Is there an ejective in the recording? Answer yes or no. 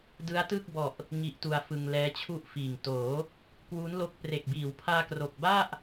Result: no